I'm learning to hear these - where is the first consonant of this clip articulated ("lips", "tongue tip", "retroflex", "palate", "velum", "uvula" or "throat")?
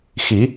velum